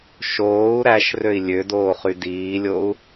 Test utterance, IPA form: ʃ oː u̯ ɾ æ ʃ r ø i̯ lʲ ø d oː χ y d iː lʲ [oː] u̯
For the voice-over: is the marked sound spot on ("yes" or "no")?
no